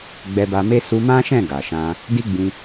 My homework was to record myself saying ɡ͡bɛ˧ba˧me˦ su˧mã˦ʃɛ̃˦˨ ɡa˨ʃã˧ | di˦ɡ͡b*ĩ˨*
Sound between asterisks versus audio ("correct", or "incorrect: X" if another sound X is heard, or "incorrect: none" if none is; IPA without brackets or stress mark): incorrect: ĩ˧